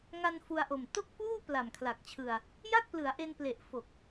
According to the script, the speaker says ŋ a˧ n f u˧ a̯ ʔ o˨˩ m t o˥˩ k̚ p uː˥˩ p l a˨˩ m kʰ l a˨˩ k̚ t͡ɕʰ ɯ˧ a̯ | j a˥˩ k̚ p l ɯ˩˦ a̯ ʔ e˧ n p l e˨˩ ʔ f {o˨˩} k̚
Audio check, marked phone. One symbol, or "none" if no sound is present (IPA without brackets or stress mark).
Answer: o˨˩